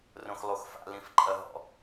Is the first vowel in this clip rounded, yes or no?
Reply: yes